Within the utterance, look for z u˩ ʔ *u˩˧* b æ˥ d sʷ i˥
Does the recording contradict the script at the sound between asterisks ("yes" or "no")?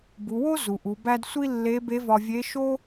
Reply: no